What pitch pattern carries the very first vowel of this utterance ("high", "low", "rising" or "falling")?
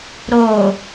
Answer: low